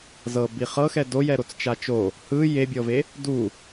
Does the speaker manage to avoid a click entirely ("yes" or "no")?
yes